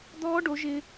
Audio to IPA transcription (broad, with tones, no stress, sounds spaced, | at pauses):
d̪ ɔː˦˥ ɖ o˩˥ ʒ ɪ˦˥